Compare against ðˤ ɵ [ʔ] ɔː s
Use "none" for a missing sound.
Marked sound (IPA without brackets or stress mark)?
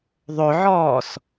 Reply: ʕ